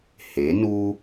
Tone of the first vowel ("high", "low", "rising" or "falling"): rising